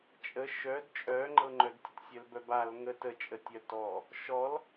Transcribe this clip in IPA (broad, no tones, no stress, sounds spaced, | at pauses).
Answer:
t͡ʃʼ ə ʃ œ d t͡ʃʼ œ ŋ͡ǃ ɤ ŋ͡ǃ œ d tʲ ə t sʲ œ l b œ b a l ŋ ə t ə t͡ʃʼ ə tʲ œ t ɔ | ʃ ɔ l